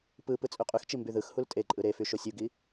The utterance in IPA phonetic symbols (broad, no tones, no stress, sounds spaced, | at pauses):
p ɯ p ɯ t͡sʼ y qʼ y x t͡ʃ i m b y ð ɯ x h u l tʼ e ǃʼ ɯ ɾ e f y ʃ o sʲ u ɡ i